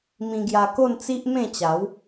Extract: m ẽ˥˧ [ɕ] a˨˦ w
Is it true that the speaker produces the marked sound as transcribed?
no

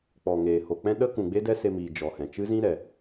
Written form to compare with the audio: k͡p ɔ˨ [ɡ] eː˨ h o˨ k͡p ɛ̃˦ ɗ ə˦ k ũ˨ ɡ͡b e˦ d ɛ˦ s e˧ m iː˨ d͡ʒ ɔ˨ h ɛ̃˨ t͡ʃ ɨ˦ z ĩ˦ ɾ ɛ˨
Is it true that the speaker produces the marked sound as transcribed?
no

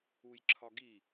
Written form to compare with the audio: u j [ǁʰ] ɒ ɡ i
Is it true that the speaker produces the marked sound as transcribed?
yes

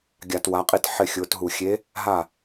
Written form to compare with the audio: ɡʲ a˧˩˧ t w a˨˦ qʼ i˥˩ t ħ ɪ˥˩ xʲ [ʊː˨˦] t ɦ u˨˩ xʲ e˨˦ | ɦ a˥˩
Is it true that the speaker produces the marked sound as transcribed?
yes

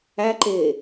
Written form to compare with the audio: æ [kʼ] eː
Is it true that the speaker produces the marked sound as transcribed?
no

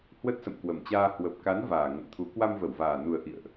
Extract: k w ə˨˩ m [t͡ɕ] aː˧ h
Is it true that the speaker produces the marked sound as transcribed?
yes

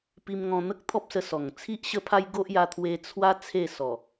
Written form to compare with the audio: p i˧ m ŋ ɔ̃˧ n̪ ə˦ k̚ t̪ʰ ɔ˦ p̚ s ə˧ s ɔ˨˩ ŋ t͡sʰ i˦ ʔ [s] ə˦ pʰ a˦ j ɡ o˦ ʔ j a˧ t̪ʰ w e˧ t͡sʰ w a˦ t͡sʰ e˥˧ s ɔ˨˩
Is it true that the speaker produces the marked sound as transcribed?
no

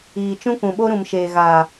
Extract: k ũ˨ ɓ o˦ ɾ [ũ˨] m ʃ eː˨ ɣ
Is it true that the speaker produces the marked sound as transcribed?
yes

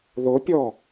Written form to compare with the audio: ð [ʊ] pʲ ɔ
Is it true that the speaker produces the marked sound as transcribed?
yes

